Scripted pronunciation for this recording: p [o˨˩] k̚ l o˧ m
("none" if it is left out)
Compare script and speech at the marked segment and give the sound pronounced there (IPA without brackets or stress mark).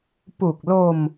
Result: u˨˩